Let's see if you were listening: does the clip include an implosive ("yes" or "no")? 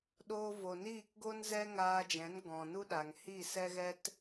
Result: yes